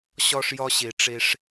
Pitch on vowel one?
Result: high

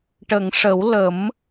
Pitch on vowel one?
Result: low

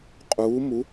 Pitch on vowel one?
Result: rising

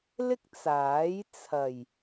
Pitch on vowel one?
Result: high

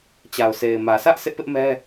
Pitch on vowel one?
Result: low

